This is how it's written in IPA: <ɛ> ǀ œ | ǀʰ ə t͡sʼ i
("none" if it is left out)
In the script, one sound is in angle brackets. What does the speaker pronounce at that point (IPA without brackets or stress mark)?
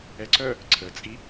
ɛ